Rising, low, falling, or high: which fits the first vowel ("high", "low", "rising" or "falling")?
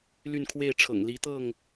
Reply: falling